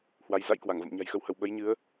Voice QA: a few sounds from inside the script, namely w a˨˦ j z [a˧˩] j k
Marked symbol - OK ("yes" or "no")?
no